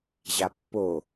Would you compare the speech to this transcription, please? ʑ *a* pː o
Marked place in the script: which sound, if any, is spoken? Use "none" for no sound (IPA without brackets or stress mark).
a